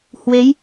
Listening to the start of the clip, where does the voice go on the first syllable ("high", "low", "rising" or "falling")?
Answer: rising